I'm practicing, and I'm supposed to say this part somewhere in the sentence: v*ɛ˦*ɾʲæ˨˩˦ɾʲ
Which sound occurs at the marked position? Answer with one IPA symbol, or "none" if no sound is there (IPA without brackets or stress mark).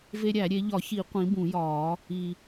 e˦